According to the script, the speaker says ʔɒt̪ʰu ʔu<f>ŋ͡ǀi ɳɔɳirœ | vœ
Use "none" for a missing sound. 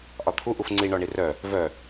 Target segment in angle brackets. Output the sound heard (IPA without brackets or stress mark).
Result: f